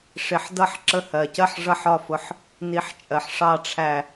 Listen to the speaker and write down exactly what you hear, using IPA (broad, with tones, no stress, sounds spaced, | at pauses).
ʂ ɪ˨˦ ħ d ʌ˥˩ ħ ǁ ə˧˩ h ɜ˩ c ɜ˥˩ ħ ʐ ʌ˥˩ ħ ɒ˥˩ f ʊ˨˦ ħ | n i˨˦ ħ t͡ʃʼ ɜ˩ ħ ʂ ɑ˥˩ ʈ͡ʂʰ æ˧˩